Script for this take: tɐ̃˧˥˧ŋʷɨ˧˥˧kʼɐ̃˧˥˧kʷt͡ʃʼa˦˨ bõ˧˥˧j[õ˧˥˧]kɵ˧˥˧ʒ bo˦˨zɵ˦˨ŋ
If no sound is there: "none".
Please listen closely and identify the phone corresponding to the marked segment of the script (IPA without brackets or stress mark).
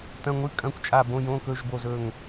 õ˧˥˧